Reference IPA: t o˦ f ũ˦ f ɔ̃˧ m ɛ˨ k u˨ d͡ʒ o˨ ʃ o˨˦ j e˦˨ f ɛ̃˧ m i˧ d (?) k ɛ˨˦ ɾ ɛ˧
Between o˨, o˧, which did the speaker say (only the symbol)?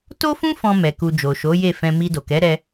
o˨